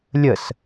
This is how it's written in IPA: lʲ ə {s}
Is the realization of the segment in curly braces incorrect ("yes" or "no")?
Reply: no